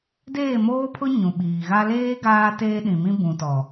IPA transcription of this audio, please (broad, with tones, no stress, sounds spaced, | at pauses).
d eː˦˨ m oː˦ pʰ ʊ˦ ɲ ũ˨ ɓ iː˨ ɣ a˦ l eː˦ ɡ aː˦ t eː˦ ɗ ĩ˨ m ĩ˦ b ũ˨ t ɔ˨